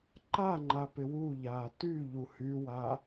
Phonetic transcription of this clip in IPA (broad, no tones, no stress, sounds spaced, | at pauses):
ǃ a ŋ͡ǃ a p ɪ w u ʎ aː t y ʎ u h y w a